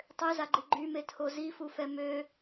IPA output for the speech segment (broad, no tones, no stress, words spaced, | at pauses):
tˤøzaɡ͡ǃi ɡ͡ǃymetʰo zifufɛ mø